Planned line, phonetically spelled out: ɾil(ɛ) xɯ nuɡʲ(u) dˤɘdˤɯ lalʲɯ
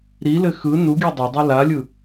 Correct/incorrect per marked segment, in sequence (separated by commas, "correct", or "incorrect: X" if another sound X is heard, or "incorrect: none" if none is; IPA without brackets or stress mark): incorrect: ɘ, correct